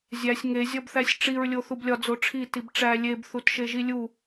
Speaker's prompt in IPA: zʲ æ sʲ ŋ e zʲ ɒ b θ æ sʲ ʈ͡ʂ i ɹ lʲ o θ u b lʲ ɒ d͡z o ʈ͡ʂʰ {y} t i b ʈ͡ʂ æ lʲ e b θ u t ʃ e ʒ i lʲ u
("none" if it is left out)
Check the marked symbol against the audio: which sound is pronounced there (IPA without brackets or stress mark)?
i